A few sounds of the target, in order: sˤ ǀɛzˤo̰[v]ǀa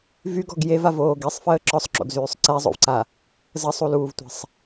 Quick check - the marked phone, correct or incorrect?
correct